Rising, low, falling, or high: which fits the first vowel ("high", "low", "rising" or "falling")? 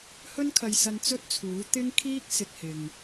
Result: high